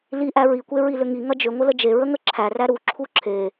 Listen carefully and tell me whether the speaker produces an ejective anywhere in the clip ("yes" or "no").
no